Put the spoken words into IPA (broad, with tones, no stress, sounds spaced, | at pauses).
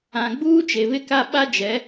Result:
ã˨ ɡ͡b uː˦ t͡ʃ e˨ β ɪ˦ k a˦ ɓ a˦ d͡ʒ ɛ˨˦